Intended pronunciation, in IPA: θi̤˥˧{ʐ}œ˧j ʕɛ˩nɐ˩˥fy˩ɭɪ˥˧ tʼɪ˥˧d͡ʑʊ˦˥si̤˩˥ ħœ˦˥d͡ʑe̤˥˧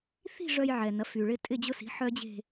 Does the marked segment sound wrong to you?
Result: no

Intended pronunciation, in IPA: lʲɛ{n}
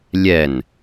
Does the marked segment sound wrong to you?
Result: no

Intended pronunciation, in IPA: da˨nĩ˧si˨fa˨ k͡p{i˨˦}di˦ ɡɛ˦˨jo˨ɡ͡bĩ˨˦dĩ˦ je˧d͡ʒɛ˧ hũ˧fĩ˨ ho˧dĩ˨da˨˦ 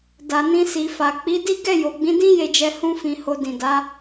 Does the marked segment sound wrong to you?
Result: no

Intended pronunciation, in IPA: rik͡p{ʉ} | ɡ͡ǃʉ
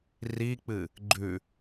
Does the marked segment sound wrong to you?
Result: yes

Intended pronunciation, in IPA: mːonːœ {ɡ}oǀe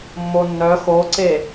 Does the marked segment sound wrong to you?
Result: yes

